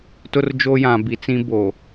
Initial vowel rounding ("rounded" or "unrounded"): rounded